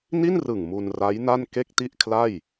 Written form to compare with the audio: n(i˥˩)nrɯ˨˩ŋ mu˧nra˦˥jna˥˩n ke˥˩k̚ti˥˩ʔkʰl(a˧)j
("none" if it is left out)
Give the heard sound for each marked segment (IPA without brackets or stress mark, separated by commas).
i˥˩, a˥˩